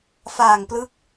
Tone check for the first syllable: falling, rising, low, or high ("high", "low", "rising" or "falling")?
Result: low